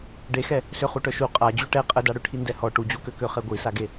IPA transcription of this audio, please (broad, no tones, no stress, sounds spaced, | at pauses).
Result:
ɖ e x ɛ | s ø χ u ʈ œ ʃ u qʼ a d͡ʑ y ʈ ɛ qʼ ə d a ɽ ø ʈʰ i n d ɛ h ɔ ʈ u d͡ʑ u k ø k ø χ ɛ ɡʷ i s a ɡ e